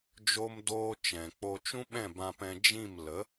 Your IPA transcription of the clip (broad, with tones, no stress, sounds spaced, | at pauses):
d͡ʒ o˦ m d oː˦ t͡ʃ ɛ̃˨ k͡p o˧ t͡ʃ ũ˦ ɓ ɛ̃˦˨ b ã˧ p ɛ̃˧ d͡ʒ ĩ˦˨ m l ə˨˦